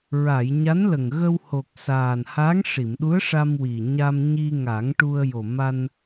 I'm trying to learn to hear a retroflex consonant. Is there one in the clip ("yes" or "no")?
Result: yes